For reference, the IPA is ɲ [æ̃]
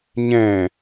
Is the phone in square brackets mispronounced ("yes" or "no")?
yes